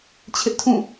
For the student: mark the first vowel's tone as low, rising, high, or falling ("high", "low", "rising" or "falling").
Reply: high